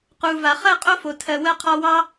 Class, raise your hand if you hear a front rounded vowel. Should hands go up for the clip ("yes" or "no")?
no